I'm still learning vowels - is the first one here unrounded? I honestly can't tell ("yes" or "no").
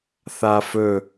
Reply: yes